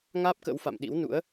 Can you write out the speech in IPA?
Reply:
ŋaː˦˥p̚kə̰˧˥wfa̰˧˨mɗḭ˧˥w nṵ˧˥ə̯

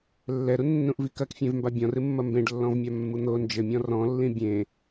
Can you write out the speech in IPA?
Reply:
lːɛɾunːũʔvi kɐkfʲẽvmba bʲɔ̃rɨmːɐ mbẽɖlːɔ̃vmʲamːu n̪o nd͡ʒɘmʲɔ̃ rɔ̃lːĩ bʲẽ

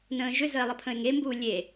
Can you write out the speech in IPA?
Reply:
nə̃ːʒʏzəe̯ lˠəpʰə̃e̯ŋembuː lʲe

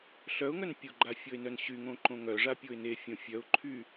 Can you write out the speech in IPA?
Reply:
ɬœʊ̯ŋœn pʲoɡ͡ǃa fʲɔɪ̯nœnɕyŋõ ǃõŋœʐa pʲoɪ̯nefʲõ fʲœʊ̯ǃʰy

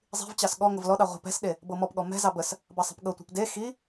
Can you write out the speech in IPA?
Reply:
zˤi̤vt͡ɕɑs ɠɔ ŋəvlɔɗɑ ʁʷɛ̤p ɛ̤sɗe | bɤmɔpɠɔ mɛ̤zɑ bəs | bɑsˤɛ̤pɠɤtʷɑ̤p de xi

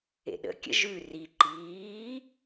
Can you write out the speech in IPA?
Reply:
ḛɗə̰kʲə̰ ʒʉ ri ǃiː

